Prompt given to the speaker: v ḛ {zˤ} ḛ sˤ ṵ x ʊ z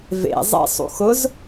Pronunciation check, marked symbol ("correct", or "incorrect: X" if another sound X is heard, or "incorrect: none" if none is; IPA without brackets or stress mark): correct